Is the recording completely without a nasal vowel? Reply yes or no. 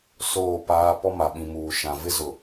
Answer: no